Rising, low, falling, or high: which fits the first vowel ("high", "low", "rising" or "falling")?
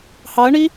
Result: rising